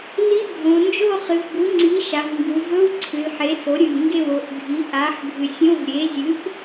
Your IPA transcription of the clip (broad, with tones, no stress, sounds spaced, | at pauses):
l i˧˥˧ ɡʱ õ˩˧ n d͡ʒ o˥˧ χ ɨ˩˧ v b u˩˥ ŋ͡ǀ i˩˥ ʃ a˩˧ v ŋ ɡ u˩˧ v ɵ˧˥˧ w ǀʰ ɨ˩˧ l ħ e˩˥ s o˩˥ ɾʲ ɨ˨˩ ŋ ɡ e˥˩ w o˨˩ ʔ ɡʱ i˩˥ ʔ a˩˥ ħ ɡʱ ɨ˨˩ sʲ õ˧˥˧ v ɾʲ e˩˥ zʲ ɨ˩˥ ʔ